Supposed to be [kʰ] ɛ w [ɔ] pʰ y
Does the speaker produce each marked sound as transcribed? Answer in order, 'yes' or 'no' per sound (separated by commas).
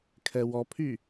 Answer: yes, yes